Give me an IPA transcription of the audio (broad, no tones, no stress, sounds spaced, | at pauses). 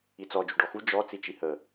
i t͡s ɔ d͡ʒ u ɖ ɔ x u d͡ʒ ɔ t͡s i t͡ʃ i h ə